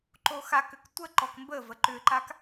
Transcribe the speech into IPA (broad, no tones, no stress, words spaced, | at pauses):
ǃoxakʏk tʷə ǃɔkmbəvə ǃʏǃak